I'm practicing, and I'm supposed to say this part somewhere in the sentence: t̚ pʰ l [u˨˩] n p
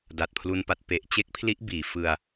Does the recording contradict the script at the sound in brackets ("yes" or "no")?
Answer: yes